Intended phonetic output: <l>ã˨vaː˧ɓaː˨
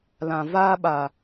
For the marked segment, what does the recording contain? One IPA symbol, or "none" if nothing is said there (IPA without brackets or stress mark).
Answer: l